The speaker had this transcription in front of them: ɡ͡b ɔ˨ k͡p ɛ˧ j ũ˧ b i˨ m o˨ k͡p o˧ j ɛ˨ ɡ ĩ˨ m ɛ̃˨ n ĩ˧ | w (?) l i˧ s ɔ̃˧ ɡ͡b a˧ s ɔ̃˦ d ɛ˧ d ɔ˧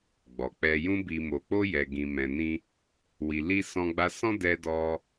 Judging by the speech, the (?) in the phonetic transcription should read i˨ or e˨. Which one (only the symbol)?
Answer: i˨